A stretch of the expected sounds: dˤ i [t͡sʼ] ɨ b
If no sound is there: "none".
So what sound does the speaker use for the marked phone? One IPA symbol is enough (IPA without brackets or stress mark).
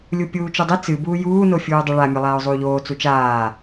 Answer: t͡s